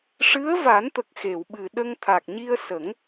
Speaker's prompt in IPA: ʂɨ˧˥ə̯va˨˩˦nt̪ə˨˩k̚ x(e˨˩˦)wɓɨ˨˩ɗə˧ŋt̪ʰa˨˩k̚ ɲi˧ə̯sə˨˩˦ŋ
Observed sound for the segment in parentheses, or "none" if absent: e˨˩˨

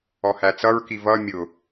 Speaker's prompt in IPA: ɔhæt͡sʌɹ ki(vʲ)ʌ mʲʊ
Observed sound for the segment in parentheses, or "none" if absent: v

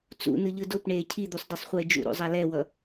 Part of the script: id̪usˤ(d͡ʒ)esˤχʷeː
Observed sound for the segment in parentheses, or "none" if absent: d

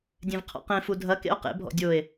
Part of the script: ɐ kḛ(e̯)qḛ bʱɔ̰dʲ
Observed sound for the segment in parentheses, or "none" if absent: o̯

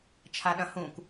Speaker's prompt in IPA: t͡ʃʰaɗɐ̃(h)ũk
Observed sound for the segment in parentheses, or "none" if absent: h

